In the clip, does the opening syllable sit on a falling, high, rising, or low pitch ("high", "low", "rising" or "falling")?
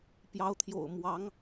rising